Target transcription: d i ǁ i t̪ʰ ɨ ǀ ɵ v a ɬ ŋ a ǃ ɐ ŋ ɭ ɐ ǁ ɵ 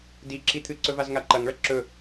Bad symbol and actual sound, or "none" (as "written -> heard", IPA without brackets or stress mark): ɬ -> z